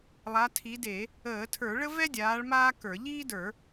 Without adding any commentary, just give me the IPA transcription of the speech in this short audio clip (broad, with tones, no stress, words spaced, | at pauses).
lˠa˨˦tʰi˨˦de˧˩˧ | əː˧˩˧ tʰə˞˧˩˧ɭə˥vɛ˥dʲaː˨˦ɭ maː˥kə˞˧˩˧ ʎiː˥də˞˧˩˧